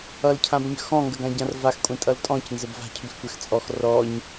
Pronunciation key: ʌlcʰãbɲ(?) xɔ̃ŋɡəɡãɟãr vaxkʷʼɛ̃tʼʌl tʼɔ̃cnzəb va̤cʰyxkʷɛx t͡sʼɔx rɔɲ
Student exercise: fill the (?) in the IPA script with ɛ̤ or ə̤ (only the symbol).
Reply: ə̤